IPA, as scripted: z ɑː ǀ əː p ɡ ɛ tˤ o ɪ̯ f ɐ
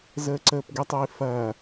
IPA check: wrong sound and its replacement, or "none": ɑː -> əː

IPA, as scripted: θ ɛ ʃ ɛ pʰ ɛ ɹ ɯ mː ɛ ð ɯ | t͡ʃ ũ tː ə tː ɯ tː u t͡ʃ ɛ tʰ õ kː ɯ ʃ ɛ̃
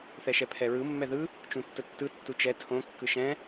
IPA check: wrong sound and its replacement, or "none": none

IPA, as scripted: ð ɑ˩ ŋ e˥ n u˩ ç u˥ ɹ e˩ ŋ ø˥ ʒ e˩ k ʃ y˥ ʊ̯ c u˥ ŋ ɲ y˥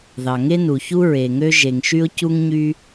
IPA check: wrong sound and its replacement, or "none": k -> ŋ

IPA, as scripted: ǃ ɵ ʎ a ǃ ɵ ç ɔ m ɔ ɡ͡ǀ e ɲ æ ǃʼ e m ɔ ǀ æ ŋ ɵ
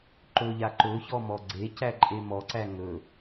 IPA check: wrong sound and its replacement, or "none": ɲ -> c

